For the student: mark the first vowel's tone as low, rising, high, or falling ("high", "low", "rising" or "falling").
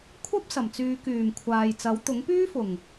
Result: high